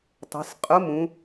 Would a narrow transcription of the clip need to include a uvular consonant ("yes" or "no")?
yes